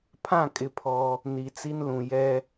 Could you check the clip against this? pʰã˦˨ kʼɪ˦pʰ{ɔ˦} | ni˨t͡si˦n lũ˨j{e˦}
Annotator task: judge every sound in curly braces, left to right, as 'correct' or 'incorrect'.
correct, incorrect: ɛ˦

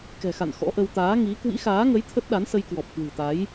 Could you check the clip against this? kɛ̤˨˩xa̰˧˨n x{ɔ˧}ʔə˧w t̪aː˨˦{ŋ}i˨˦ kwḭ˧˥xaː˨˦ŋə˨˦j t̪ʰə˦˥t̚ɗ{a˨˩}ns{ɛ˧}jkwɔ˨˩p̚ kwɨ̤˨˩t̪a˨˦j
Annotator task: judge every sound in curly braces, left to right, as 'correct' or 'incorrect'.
incorrect: ɔ̰˧˥, correct, incorrect: a˨˦, incorrect: ə˧

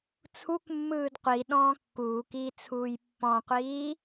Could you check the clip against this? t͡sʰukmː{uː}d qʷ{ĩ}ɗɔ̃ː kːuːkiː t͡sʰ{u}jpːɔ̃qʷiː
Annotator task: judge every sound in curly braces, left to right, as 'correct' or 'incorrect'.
incorrect: ɯː, incorrect: i, incorrect: uː

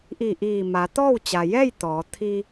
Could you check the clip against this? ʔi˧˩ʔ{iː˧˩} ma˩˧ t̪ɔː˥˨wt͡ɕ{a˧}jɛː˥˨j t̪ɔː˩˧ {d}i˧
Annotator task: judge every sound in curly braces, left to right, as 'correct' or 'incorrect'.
correct, incorrect: a˩, incorrect: t̪ʰ

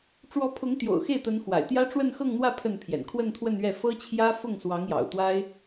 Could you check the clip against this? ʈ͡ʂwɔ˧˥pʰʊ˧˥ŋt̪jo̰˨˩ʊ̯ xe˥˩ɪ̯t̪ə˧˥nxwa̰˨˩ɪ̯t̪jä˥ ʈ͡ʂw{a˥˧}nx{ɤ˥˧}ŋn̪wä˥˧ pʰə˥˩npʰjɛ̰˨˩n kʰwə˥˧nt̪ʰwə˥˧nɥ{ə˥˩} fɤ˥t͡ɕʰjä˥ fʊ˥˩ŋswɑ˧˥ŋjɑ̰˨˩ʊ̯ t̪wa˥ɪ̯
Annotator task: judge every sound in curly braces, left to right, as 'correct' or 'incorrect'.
incorrect: ə˥˧, correct, incorrect: ɛ˥˩

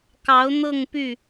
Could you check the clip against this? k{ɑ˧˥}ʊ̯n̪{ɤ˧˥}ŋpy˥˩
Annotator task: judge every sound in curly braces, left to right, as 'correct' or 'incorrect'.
correct, incorrect: ɤ˥˧

